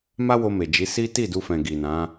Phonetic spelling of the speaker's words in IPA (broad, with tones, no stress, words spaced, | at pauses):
ma˦wo˧me˨d͡ʒi˨˦ si˦ ti˦˨du˧fɛ̃˨ ɡi˨nã˨˦